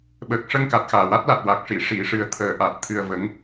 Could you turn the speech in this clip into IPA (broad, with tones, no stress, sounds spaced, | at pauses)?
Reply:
ɓ əː˨˩ k̚ ʂ ə˧ ŋ k a˨˩ t̚ x aː˨˩ w a˦˥ t̚ l a˨˩ t̚ w a˨˩ k̚ ʂ i˨˩˨ ʂ i˨˩˨ ʂ ɨ˨˩ ə̯ t̪ʰ əː˨˩˦ ʔ a˨˩ t̚ t̪ʰ ɨ˧ ə̯ v ə˧˥ ŋ